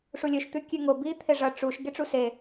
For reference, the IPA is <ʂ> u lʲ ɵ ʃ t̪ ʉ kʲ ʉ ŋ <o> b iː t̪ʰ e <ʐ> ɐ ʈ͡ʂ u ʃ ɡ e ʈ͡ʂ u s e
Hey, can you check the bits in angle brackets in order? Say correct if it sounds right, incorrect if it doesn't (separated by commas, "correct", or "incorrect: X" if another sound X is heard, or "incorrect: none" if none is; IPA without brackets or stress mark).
correct, correct, correct